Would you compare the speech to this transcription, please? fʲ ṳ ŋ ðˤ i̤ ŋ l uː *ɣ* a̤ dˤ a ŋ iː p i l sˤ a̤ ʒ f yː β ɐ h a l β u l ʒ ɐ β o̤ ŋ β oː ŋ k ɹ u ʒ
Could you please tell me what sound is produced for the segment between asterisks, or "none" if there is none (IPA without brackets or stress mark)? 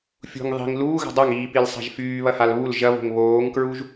ɣ